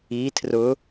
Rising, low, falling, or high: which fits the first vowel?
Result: rising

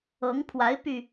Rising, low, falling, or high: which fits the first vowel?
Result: rising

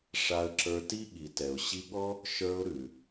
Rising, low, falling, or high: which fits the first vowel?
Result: high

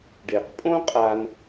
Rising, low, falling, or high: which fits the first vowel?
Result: low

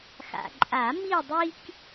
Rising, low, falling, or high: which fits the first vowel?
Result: low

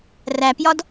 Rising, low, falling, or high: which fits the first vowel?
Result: low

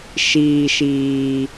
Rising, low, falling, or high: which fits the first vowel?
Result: low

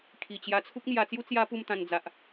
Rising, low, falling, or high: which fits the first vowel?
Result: low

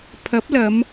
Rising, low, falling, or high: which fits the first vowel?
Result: rising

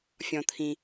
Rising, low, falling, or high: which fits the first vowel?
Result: low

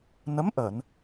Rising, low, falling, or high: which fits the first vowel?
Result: rising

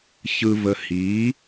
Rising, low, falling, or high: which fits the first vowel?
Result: low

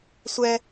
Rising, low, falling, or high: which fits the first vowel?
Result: high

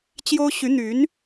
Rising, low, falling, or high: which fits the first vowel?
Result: high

